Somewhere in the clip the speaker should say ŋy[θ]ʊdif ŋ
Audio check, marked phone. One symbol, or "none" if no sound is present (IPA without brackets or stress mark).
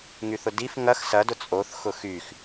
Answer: θ